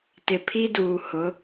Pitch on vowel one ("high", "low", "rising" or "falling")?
low